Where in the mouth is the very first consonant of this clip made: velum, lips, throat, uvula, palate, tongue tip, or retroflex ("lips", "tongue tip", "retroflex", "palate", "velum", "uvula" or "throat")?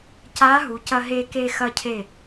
palate